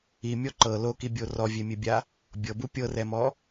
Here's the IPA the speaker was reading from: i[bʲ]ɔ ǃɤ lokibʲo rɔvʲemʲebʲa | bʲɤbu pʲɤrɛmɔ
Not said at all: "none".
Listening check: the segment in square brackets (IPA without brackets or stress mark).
mʲ